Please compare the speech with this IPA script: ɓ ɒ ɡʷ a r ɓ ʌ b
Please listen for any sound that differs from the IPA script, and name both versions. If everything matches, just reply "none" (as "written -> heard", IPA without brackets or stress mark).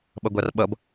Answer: ɒ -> ʌ